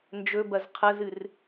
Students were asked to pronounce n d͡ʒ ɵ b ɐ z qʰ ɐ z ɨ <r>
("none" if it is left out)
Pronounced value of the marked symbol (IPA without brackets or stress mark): r